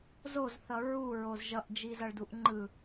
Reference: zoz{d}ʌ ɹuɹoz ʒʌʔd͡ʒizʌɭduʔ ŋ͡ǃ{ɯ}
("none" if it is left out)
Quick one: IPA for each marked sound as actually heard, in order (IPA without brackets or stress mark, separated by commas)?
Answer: θ, ɯ